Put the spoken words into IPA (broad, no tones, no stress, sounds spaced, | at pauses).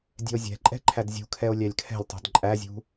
dʲ ɛ̤ o̯ zʲ ɛ̤ ǃʼ ɛ̤ ǃʰ æ d zʲ ṳ kʰ ɛ o̯ lʲ æ lʲ kʰ ɛ̤ lʲ tˤ ṳ d ǃʼ æ zʲ ṳ